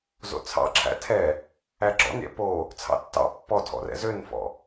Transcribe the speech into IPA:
zo̰t͡sʰɑ̰ǁʰæ̰ tʰɛ | æɡ͡ǁɔ̰nɾʲɛ̰ po | t͡sʰɑ̰tːɑ̰ pːɔ tʰɔ̰rɛ̰zønfɔ̰

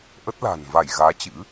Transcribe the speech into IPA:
ʔə˦˥t̚la̤ː˨˩n va˧˩j ɣaː˨˦t͡ɕɨ̰˧˥

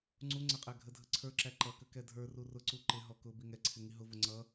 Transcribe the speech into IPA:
ŋ͡ǀu ŋ͡ǀəqʼæ ɡʱədʱəǀʰə˞ǁæ ǃʌkə kɛdʱə˞ru rʊǀu ǃɪɦɔ kʊ biŋɛǀʰɪ ŋiɦʊvʊ ŋ͡ǀʌ

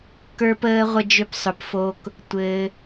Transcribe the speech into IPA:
kə˞˧pəː˧ ʁʷə˥d͡ʒø˥psˤʏ˧pfo˥k | tʷɘː˧

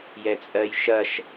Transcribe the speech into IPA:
jɛt͡sʼɜjʃɐʃ

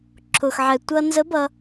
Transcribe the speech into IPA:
ǁʰʊ˩xʕɛ˩ tʷʌ˧nzə˧˥ bʌ˧

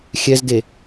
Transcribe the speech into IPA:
xʲɛzde

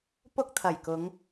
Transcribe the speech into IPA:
pʊ˥k̚ t̪ʰɐ˨˩jkʊ˨˧ŋ

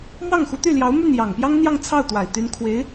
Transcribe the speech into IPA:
mwɑ˥˩ŋxu˧˥t̪y˥˩ljɑ˧˥ʊ̯ my˥˩njɑ˨˩ŋpjɑ˥ŋn̪jɑ˥˧ŋ t͡sʰɑ˥˩ʊ̯t̪wa˨˩ɪ̯ t̪y˧˥n kʰwe˧˥ɪ̯

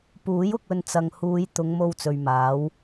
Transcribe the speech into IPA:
puː˨˥j ʊ˧k̚ɵ˧n t͡sɐ˨ŋhuː˨˧j t̪ʊ˨˧ŋmo˧w t͡sɵ˨ɥmaː˨˥w

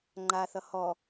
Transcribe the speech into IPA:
ŋ͡ǃaθʌ hɔ

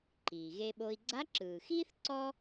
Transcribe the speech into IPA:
ǃiː˩ɣe˧ɓo˧i̯ ɡ͡ǀa˧˥ǁɯː˩xiː˥θ ǀɔ˥

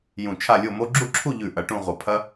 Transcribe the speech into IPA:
jũ˧˩t͡ʃʰa˥˧lʲo˥˧mo˥ ɡ͡ǁu˥˧ǁʰu˥˧ʎʉ˧˩ ʔɐ˧ʈũ˥˧ʁʷɐ˧˩ pʰɐ˥

